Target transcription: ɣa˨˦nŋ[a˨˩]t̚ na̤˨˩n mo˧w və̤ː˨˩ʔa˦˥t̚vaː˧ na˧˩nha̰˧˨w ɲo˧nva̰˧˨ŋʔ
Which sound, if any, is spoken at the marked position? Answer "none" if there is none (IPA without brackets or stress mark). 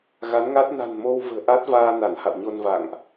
a˦˥